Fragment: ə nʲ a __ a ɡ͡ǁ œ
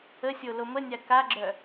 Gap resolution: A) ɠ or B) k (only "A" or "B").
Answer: B